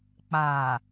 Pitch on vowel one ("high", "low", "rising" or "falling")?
low